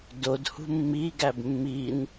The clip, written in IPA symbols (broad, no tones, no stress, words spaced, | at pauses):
dodhṳ mːiɡæb mːin